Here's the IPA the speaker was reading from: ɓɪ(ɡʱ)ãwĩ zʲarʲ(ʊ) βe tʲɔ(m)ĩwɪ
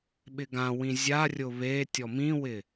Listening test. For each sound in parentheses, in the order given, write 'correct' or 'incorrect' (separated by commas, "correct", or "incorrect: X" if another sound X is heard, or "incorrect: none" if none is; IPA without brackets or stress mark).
incorrect: ɡ, correct, correct